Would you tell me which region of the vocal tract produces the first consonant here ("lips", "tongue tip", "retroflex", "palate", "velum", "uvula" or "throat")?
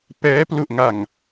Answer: lips